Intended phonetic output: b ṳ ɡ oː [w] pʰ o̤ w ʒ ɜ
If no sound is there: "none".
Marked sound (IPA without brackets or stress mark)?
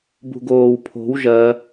w